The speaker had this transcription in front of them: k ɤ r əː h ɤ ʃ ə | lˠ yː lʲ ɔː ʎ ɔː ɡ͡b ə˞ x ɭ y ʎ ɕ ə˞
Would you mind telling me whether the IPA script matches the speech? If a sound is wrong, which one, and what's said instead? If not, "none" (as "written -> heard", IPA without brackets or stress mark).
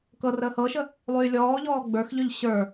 ɭ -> ʎ